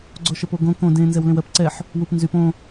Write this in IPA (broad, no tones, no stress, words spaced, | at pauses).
ɡ͡ǀoʃəpoɡõ kõ dẽ nzɛwlẽwɜp ǀɛħ | wupnzyp õ